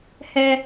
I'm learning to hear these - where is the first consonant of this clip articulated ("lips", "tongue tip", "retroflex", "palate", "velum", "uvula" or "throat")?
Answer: throat